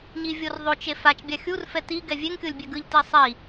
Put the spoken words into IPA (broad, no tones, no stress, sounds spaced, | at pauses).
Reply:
ɲ i vʲ o r ðˤ o t͡ʃ e f a t͡ʃ bʲ a xʲ u r f ɛ t i ɡ ɛ vʲ e ŋ kʲ o lʲ bʲ ɛ ɡ ɯ ʎ t i sˤ i